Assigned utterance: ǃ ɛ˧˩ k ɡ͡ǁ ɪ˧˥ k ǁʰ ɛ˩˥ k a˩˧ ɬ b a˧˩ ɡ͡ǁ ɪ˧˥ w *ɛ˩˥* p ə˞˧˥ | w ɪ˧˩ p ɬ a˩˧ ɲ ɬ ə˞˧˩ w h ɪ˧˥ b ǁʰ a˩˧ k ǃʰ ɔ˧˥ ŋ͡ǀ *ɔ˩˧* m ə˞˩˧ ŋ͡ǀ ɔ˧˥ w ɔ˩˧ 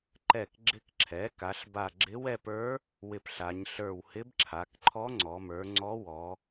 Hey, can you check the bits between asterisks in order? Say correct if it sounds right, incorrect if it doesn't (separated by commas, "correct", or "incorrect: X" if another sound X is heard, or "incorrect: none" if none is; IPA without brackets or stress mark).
incorrect: ɛ˥˧, correct